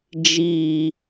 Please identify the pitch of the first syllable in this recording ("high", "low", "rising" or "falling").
low